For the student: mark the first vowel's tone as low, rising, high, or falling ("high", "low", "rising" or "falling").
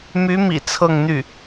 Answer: rising